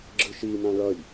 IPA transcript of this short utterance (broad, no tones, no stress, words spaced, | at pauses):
ɡ͡ǁɯʃi nãɭʌj